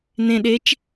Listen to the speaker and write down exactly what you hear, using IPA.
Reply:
n ẽ ɗ e t͡ʃ

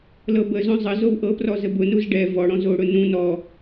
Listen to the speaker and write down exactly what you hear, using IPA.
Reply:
l ɤ b ə z õ zˤ ə z o w ʔ ɤ p r ɔ z ə b ʊ n u z ɖ ɛ v ɔ ɽ ɔ̃ z o ɽ ʊ n ũ n ɔ

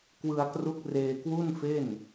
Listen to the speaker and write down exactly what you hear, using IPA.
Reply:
k w ɯ˧ a̯ k r u˦˥ k̚ r eː˧ k w u˥˩ n f e˥˩ n

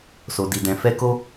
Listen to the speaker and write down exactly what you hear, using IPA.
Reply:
s o˨ d i˨ d ɛ̃˨ f ɛ˧ k o˧

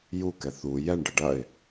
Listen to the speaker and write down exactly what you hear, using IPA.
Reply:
j u k ɛ θ u j ɛ ɳ ɖ ə ɖ ɐ ɪ̯

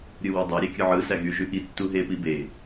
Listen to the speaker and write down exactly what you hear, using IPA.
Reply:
ɾʲ ɯ w æ dˤ i ɾʲ e kʲ ɯ ʕ ɯ s æ ɣ y ʒ y ʔ i tː u ɦ e p i b e

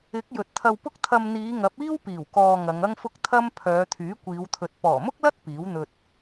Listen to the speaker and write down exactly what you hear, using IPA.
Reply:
ɪ˨˥ k̚ j ɵ˨ t̚ t̪ʰ ɐ˧ w p ʊ˥ k̚ t̪ʰ ɐ˧ m n̪ iː˨˧ ŋ ɐ˨˥ p̚ iː˥ w p iː˨˩ w k ɔː˨ ŋ ɐ˨˧ ŋ ɐ˥ ŋ f ʊ˥ k̚ t̪ʰ ɐ˥ m pʰ œː˨˧ t̪ʰ yː˨˥ kʷ iː˨˧ w t̪ʰ ɵ˨ t̚ p ɔː˨˩ m ʊ˥ k̚ l ɐ˥ t̚ p iː˨˥ w n̪ ɵ˧ t̚

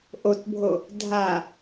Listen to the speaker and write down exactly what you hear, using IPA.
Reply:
ʔ o t bʱ o | dʱ a

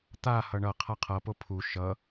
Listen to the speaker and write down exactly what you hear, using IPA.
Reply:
t̪ a h ʌ ɳ ʌ qʰ a qʰ ʌ p o pʰ u ʃ ʌ

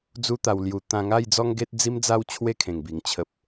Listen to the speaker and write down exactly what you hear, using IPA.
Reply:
d͡z u˧ t̪ a˨˩ w l j u˨˩ t̪ ã˧ ŋ a˥˧ j d͡z ɔ˦ ŋ ɡ e˦ t̚ d͡z i˦ m d͡z a˦ w t͡ɕʰ w e˥˧ kʰ ẽ˨˩ ŋ b i˨˩ ŋ t͡ɕʰ ə˨ p̚

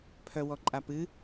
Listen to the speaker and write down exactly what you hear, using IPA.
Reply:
pʰ œ w ɔ ǃʼ a p ɨ

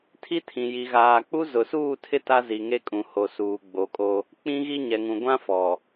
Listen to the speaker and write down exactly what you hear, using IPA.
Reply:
tʰ i˦ tʰ ĩ˨ j i˨ ɣ aː˨ k͡p u˦ z ʊ˨ s uː˦˨ tʰ ɪ˦ t a˦ z i˨ ŋ e˦ kʼ ũ˨ h o˨ s uː˨ ɡ͡b o˨˦ kʼ o˦ | k͡p ĩ˦ ɣ i˦ ɲ ɛ˨ ŋ ũ˨ ɡʷ ã˦ f ɔ˨

